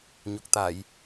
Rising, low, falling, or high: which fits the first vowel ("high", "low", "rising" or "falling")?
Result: low